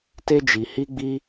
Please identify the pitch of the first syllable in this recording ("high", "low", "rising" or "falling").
high